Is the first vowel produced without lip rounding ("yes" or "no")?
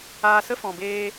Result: yes